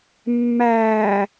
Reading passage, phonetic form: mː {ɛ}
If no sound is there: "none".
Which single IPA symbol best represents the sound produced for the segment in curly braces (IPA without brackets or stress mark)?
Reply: æ